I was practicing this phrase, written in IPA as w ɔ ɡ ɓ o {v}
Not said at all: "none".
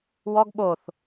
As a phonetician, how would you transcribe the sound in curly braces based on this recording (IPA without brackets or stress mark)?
θ